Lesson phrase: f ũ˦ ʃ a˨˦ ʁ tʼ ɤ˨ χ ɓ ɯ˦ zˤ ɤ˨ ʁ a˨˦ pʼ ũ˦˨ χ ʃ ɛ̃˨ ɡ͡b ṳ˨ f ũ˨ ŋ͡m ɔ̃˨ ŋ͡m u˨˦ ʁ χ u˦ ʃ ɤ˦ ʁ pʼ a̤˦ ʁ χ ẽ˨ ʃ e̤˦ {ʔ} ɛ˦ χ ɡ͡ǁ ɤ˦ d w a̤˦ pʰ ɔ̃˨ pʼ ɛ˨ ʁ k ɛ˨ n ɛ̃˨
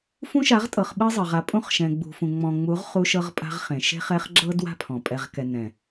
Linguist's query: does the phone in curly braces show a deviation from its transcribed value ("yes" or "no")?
yes